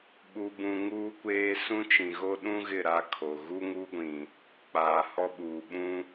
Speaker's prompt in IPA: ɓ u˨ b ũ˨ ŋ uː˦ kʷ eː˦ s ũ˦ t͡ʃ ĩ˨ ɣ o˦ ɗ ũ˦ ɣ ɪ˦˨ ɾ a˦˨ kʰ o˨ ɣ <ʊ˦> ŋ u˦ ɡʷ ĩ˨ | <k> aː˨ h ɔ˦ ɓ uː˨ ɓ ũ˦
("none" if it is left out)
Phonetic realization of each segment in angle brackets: u˦, k͡p

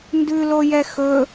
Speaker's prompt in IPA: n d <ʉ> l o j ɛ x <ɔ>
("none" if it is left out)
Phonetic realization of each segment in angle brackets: ʉ, ɵ

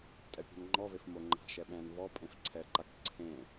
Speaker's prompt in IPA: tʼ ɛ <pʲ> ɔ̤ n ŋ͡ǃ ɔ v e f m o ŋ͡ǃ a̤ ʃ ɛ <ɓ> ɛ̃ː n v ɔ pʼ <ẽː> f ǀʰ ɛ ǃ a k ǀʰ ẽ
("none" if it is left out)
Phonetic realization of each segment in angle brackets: pʲ, ɓ, ẽ

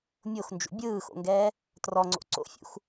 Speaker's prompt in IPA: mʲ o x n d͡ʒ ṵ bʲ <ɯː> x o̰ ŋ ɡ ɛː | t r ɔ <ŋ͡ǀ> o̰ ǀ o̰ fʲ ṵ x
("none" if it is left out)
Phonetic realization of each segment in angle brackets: ɯː, ŋ͡ǀ

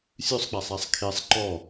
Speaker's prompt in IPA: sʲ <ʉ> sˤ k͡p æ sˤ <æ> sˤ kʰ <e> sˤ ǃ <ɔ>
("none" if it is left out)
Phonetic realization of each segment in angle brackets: ʉ, æ, e, ɔ

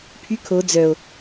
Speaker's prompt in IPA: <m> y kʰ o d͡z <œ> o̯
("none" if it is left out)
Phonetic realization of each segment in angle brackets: pʰ, œ

